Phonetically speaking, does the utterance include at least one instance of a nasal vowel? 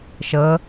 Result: no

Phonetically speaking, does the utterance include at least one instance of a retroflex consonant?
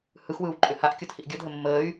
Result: no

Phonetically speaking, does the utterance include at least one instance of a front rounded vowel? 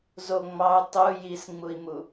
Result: no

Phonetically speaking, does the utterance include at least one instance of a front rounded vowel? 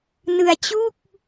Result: no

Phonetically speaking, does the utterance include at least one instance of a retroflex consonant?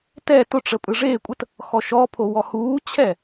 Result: yes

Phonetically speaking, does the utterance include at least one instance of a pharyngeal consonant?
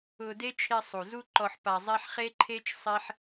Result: yes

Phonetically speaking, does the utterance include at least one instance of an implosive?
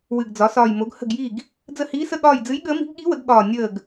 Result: yes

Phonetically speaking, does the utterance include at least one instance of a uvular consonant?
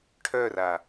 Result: no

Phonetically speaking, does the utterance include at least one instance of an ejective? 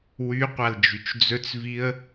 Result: no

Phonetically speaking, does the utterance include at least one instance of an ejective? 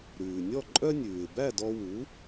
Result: yes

